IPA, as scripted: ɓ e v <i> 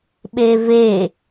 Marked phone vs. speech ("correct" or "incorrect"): incorrect